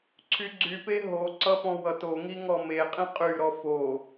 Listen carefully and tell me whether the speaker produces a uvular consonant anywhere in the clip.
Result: yes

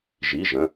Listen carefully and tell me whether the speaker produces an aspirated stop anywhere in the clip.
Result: no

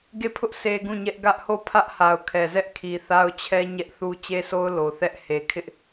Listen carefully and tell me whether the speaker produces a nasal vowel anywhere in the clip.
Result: yes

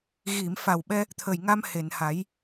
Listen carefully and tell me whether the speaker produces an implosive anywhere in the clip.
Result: yes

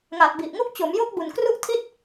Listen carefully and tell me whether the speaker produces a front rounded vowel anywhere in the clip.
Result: no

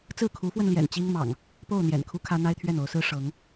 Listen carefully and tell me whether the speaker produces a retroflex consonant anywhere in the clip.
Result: yes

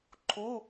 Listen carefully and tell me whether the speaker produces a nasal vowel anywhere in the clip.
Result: no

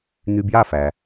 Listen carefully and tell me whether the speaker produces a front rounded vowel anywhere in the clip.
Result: yes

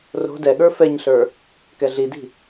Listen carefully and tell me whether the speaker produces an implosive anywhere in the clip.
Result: yes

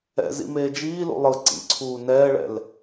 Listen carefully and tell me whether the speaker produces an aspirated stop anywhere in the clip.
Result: yes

